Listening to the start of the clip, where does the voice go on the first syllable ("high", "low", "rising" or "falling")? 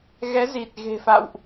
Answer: rising